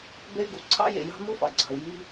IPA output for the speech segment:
b e˥ y̯ ɡ u˩ ǀʰ ɑ̰˥ j ḛ˩ j ɑ̤˥ m u˥ f ɑ̰˩ ɡ͡ǀ ɑ̤˩ u̯ j i˥

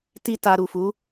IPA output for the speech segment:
t i˦ t a˧ ɾ u˨ f u˨˦

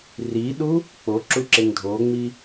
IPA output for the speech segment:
r i ɗ u | k͡p o ǁ u ǁ e ŋ dʱ o ŋ͡m i

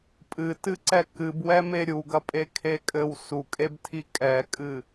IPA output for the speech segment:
pʼ ɨ t ɨ ǀ ɛ k ɨ b w ɛ m e ɾʲ u ɡ ɐ pʼ e kʰ e kʼ ɘ w s u kʼ e b tʰ i kʼ ɛ kʼ ɨ

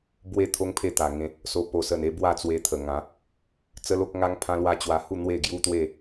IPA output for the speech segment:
b w e˥˧ t̪ʰ o˦ ŋ pʰ e˥˧ t̪ a˨˩ ŋ ẽ˧ | s o˧ p o˨˩ s ə˨˩ n e˧ b w a˥˧ t͡s w e˧ t̪ʰ ə˨˩ ŋ ã˨˦ | t͡s ə˦ l o˦ k̚ ŋ a˦ ŋ pʰ ã˦ l w a˥˧ t͡ɕ w a˧ h u˥˧ n̪ w e˥˧ ɡ j u˦ t̪ w e˥˧

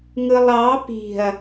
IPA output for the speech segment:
ŋ ɯ lˠ ɑ p i̤ ɐ̯

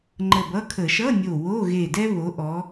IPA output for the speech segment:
ŋ͡ǃ ə˧˩ b ʌ˧˥˧ kʰ ə˧˩˧ ʃ ʌ˧˥˧ nʲ o˧˩ w o˧˥˧ ɣ e˧˩ d ɛ˥ β o˨˦ ʔ ɔ˨˦

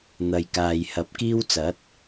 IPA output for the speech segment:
n̪ ɐ˨ j k aː˨ j h ɐ˨ p̚ k iː˥ w t͡s ɐ˨˥ t̚

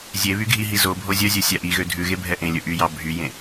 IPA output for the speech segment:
zʲ e β y ɡʱ i ɦ i z o bʱ o zʲ œ zʲ œ sʲ æ ʔ i ɣ ø dʱ ʉ ɣ e bʱ ɛ ʔ ẽ lʲ ɵ ʔ y j ɑ bʱ y j ẽ

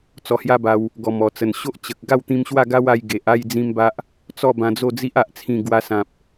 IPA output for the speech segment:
t͡s ɔ˧ h j a˦ b a˧ w | ɡ ɔ˨˩ m ɔ˨˩ t͡s ə˨˩ n ɕ o˦ ʔ t͡ɕ ə˨ k̚ ɡ a˥˧ w t̪ ĩ˧ m ɕ w a˥˧ ɡ a˦ w a˧ j ɡ e˨ ʔ a˥˧ j d͡z ĩ˦ m b a˦ ʔ | t͡s ɔ˥˧ b ã˧ d͡z o˥˧ d͡z i˦ ʔ a˨ ʔ t͡sʰ ĩ˨˩ ɡ w a˧ s ã˨ p̚

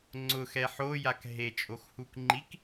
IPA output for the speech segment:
ŋ͡ǀ ʊ x ɛ ħ o j a k ɦ e t͡ʃʼ o x h u k ŋ͡ǃ i k

